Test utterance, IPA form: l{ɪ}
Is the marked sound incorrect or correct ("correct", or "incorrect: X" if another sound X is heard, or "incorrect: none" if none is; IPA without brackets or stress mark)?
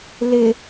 correct